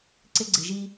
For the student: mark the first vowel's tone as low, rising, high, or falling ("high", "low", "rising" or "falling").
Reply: high